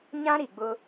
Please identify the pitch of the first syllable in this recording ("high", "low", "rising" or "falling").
high